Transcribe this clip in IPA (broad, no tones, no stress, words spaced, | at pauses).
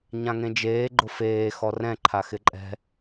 ɲãŋẽd͡ʒeː ɡ͡ǃʊfeː xɔrɛ̃ǃʰa xɪǃʼɛ̤